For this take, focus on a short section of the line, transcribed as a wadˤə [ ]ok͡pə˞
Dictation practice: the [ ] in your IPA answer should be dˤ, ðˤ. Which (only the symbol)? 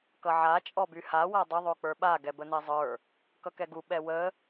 ðˤ